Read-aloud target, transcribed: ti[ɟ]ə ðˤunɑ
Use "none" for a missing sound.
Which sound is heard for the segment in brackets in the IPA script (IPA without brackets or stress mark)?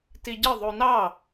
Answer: ɟ